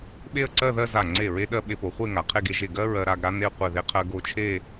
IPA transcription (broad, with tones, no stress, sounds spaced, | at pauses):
ɓ e˥˧ ə̯ ǀ ɜ˥˧ ð ɜ˥˧ z a˧˩ ŋ͡ǀ e˧˩ ɹ e˧ ɗ ɜ˧ ɓ e˧ p o˩˧ χʷ e˥˧ ŋ a˩˧ qʰ e˥˧ ɡ e˧ ʒ e˧˩ ɡ ɜ˥ ɹ ɜ˧ ɾ a˧ ɡ ɾ a˥ n e˥˧ qʷ e˧˩ ð e˧ qʰ ɜ˧ ɡ o˧ t͡ʃʰ e˥˧